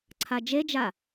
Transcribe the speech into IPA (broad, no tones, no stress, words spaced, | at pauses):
ǀʰad͡ʒed͡ʒa